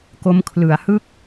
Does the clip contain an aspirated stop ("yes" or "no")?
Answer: yes